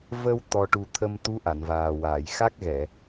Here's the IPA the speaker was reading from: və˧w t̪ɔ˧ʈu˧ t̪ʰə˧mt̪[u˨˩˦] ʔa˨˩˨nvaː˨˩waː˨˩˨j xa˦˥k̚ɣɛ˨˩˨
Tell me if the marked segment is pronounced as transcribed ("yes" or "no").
no